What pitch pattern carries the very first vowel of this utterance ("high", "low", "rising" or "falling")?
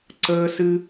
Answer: high